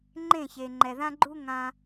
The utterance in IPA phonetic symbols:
ŋ͡ǃ ẽ˥˩ ç e˩ ŋ͡ǃ ɛ˩ ð ã˥ ɡ͡ǃ u˥ ŋ ã˧

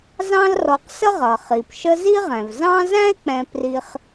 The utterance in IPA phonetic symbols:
z ɑ̃˦ l r ɔ˨ q s ə˥ ʁ ʌ˩ χ i˩ p ʃ ə˦ z i˥ ʁ ɛ̃˩ v z ɑ̃˥ z æ̃˥ e̯ k͡p ɛ̃˨ p r i˨ χ

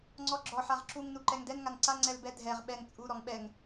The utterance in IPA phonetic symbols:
ŋ͡ǀ ɔ ɡ͡ǁ ɔ ħ a ʁ ǁ u ŋ n u ǃ ɛ ŋ d ɛ n ŋ a n ǀ a ŋ͡ǀ ɛ l b ɛ dʱ ɛ ʁ ɓ ɛ ŋ t͡sʼ u ɾ ɔ ŋ ɓ ɛ ŋ

